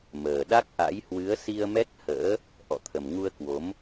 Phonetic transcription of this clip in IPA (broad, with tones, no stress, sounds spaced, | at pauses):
m əː˨˩ ɗ a˦˥ k̚ ʔ a̰˧˥ j h w ɨ˨˦ ə̯ s i˧ ə̯ m ɛ˦˥ k̚ h ə̰ː˧˥ | ʔ ɔ̰˧˨ t̪ʰ ə˨˩ m ŋ u˧ ə̯ k w o˨˦ m